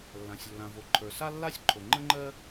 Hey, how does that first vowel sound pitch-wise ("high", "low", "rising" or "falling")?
low